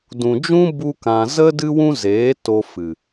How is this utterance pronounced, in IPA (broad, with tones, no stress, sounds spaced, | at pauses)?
d ũ˨ d͡ʒ ũ˦ b u˦ k ã˧ z ə˦ d ɨ˦ w ũ˦ z eː˨˦ t o˧ f ɨ˨